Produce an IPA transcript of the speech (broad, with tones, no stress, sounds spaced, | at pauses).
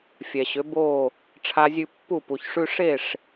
fʲ ɛ˨ ɕ ʏ˨˦ b o˦˨ | ʈ͡ʂʰ a˧ zʲ ʉ˧ pː u˦˨ p u˨ ç ʂ ʉ˦ ʂ e˦˨ ʂ